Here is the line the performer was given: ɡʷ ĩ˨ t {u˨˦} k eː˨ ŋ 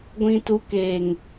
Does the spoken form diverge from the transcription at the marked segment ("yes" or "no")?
no